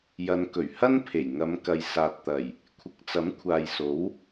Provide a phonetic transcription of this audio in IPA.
jɐ˨˧nkɵ˨˩ɥ hɐ˥n pʰe˨˩jŋɐ˨˧mkɐ˨j saː˨t̚t̪ɐ˨˩j | kʷʰɪ˨k̚ t͡sɐ˨˥mkʷʰaː˨jso˨˥w

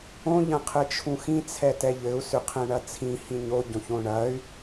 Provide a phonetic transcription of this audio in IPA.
õ ʎɐ̃qʰɘt͡ʃʰũxĩ t͡sʰɛtɛʎɘu̯ sʏqʰɛ̃ɳɐt͡sʰĩ hĩɲo ɟõçõɳɐy̯

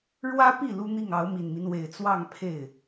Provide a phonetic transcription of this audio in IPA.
ɻwä˥pi˥˩ lu˥n̪i˥˩ŋɑ˧˥ʊ̯ mi˨˩nmi˦nwe˨˩ɪ̯ t͡swɑ˥˧ŋpʰe˥˩ɪ̯

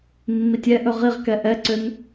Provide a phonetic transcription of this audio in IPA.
mːitʲɛʔɵ ʁiʁkɛ ʔɛǀøn

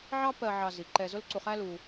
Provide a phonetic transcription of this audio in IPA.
ʕɑ˦pɜ˧ ʕɑ˧zi˨ǃɛ˧ zʊ˦lǀu˧χæ˦lu˧

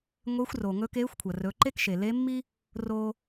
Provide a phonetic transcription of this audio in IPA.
ŋʷeː˧˥xʷroː˩ ŋɵ˧˥keː˧˥xʷkʷʰɐ˩ rɵ˩˧ ǃe˥kʃe˩le˧˥mːi˥ | roː˧

